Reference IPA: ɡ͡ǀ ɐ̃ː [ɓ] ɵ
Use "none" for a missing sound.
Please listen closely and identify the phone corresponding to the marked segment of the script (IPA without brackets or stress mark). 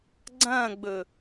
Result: ɡ͡b